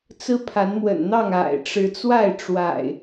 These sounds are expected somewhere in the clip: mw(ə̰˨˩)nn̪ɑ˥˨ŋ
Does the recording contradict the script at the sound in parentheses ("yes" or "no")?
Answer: no